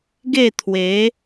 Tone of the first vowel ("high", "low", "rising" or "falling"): falling